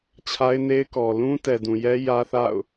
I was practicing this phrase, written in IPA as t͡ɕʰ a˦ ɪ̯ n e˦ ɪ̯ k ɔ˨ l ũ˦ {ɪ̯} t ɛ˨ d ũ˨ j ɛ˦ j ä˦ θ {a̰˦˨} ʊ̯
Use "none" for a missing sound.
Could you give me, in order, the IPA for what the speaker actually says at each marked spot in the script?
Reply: none, a̰˦˨

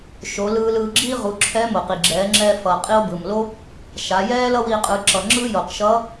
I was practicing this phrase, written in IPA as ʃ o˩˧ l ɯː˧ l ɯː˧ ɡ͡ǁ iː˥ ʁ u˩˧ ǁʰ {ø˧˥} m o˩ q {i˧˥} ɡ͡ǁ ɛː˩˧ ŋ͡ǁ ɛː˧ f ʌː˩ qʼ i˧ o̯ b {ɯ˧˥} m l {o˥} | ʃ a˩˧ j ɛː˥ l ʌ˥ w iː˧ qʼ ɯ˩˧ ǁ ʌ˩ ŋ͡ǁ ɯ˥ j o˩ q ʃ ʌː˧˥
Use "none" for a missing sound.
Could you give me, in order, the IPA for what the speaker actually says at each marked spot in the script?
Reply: ɛ˧˥, i˩, ɯ˩, o˥

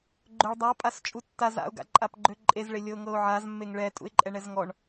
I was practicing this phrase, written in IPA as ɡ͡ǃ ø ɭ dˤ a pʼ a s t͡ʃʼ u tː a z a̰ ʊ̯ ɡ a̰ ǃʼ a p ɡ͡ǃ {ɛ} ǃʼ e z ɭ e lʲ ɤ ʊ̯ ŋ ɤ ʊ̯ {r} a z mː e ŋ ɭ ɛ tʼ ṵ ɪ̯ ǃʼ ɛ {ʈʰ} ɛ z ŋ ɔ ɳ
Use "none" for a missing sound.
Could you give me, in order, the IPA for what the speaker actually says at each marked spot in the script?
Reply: ø, ʕ, ɳ

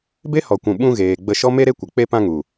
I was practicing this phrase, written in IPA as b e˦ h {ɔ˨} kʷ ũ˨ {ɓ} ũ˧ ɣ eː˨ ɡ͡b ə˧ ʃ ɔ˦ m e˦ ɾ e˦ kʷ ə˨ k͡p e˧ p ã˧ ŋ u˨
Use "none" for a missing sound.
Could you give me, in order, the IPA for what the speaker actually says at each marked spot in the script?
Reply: ɔ˨, ɓ

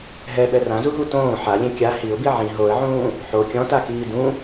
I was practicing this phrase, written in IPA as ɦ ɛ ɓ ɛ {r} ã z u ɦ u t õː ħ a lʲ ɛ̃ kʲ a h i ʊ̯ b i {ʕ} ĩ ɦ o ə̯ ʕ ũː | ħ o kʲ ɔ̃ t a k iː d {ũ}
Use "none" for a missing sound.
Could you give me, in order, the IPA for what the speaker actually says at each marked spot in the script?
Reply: r, ʕ, ũ

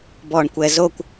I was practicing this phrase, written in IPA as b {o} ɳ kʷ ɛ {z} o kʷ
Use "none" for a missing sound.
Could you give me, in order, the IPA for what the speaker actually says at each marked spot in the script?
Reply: ɔ, z

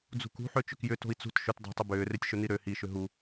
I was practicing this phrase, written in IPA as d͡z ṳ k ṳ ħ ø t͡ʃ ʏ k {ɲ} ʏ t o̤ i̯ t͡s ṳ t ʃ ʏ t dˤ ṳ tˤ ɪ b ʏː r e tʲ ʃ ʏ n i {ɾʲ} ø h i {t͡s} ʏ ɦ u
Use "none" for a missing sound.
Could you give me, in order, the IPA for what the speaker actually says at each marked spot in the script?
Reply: j, ɾ, ʃ

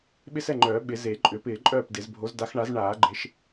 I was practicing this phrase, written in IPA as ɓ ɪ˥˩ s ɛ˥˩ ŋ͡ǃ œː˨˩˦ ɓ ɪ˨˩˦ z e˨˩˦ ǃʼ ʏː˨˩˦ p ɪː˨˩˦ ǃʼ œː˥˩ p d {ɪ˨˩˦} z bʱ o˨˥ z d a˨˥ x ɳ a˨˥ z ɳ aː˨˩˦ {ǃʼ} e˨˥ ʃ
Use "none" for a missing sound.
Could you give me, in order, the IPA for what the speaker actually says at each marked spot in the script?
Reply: ɪ˨˩˦, ɡ͡ǃ

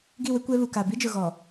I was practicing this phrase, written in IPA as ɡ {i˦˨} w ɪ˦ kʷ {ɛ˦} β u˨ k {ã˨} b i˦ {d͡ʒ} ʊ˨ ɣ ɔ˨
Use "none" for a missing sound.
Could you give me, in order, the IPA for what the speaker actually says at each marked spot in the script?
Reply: i˦˨, ɛ˦, a˨, d͡ʒ

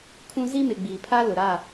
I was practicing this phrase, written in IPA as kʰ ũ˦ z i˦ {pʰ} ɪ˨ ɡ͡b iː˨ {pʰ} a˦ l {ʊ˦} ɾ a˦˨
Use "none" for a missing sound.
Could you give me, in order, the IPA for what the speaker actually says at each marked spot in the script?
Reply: m, pʰ, ʊ˨

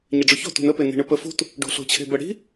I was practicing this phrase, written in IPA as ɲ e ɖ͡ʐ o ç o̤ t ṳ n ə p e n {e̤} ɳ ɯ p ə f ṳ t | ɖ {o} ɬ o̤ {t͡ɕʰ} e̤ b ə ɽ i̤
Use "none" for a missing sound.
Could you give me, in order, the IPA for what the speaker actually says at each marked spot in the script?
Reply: i̤, o̤, t͡ɕʰ

